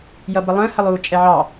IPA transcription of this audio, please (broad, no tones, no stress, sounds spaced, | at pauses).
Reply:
j ʌ b ə lˠ ə̃ː h ə lˠ uː t͡ʃʼ ɛ ʕ ɑ